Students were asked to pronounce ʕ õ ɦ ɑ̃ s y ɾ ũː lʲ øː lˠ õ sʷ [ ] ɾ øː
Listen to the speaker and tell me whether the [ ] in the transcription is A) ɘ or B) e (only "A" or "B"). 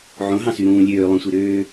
B